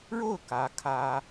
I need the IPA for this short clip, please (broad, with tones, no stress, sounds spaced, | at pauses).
ɻ o˥˩ ʊ̯ k ä˧˥ kʰ ä˥